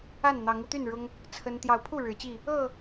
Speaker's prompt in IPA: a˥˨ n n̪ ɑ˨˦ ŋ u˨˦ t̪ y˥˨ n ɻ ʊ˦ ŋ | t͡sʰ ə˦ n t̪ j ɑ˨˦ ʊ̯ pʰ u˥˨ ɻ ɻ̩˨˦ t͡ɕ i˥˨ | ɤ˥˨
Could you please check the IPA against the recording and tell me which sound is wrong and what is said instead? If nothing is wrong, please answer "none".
none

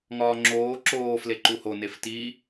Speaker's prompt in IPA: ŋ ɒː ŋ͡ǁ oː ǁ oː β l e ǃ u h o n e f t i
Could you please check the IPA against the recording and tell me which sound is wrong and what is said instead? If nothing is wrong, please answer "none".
β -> f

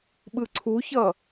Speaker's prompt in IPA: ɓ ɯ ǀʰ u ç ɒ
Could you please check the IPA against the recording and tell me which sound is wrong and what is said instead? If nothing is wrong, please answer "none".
ɒ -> ʌ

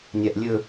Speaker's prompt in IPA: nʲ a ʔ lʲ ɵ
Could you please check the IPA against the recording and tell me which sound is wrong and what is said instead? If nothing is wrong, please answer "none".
none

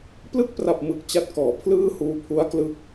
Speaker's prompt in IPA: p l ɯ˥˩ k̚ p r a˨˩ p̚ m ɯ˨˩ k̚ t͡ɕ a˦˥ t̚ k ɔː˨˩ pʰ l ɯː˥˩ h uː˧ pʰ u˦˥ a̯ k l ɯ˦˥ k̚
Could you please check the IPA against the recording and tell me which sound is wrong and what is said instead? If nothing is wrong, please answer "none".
ɔː˨˩ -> ɔː˩˦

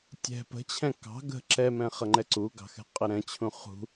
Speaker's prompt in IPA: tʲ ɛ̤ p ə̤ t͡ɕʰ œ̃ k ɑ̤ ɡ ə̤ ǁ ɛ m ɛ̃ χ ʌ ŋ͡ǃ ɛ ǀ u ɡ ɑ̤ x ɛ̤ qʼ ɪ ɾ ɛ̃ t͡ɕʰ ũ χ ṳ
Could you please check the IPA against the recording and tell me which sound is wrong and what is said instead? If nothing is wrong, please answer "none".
œ̃ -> ɛ̃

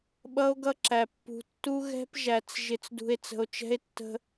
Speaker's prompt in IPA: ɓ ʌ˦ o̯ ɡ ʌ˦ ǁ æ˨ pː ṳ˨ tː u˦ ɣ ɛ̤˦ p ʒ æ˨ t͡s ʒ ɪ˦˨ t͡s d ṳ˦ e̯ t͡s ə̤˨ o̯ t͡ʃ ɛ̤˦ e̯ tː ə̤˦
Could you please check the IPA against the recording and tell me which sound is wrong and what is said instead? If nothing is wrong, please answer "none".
none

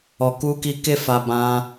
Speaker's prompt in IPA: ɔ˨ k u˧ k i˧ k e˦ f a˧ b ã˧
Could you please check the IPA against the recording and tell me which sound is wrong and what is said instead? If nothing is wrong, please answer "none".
none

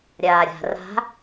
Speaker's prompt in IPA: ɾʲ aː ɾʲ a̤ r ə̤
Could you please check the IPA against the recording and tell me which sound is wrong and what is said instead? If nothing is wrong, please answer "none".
ə̤ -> a̤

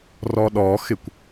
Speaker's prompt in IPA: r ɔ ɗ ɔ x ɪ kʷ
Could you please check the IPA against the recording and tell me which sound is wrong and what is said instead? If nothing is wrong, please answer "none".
none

